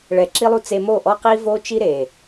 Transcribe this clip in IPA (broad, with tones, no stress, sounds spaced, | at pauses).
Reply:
ɭ ɛ˨ ǁ i˧ lˠ u˧ t͡s e˧ m o˦˨ ʔ ɔ˦ q i˦ v o˦ t͡ʃ i˦ ɾ e˨